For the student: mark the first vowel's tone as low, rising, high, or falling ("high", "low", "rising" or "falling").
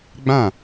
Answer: falling